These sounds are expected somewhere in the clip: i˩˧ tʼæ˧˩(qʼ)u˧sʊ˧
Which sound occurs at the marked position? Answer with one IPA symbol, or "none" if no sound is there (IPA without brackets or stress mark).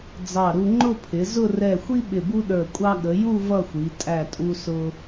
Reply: tʼ